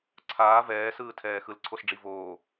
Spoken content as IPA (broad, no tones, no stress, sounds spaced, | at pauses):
ǀʰ aː v ɛː s ɯː tʰ ɛː x ɯ l ǀʰ o s ɖ͡ʐ i v oː